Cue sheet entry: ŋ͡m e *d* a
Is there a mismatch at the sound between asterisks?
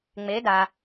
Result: no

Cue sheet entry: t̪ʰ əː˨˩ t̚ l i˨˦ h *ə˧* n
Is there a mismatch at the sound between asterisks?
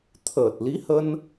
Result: no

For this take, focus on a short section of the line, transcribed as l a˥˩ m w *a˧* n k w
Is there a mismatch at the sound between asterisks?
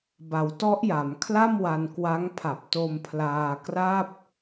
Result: no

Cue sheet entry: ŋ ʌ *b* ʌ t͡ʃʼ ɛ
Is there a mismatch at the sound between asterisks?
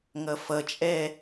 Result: yes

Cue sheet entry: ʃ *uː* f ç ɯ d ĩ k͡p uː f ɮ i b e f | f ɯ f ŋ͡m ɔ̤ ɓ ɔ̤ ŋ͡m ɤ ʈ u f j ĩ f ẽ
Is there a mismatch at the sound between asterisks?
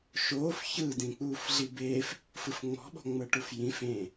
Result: yes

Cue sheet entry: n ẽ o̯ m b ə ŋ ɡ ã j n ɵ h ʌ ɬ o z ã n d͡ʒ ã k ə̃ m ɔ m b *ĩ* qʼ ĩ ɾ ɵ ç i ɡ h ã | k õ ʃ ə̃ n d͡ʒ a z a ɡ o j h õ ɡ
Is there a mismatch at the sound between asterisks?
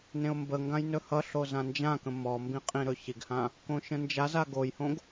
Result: no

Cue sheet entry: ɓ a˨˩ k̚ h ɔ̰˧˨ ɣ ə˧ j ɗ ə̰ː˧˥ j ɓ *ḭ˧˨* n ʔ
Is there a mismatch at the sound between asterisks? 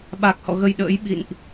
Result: no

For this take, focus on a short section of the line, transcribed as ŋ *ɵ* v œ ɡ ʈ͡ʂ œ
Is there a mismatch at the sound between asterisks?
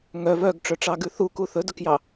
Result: yes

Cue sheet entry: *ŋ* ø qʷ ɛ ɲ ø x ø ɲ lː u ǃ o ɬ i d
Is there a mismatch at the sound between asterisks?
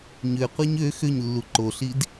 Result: yes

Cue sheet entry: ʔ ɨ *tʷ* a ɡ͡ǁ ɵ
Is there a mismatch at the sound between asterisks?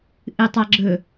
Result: yes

